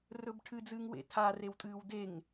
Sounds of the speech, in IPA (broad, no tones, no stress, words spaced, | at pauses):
rɵbʈʰɨd͡zɨːŋ wḛtʰarew tʼɨːwdeŋ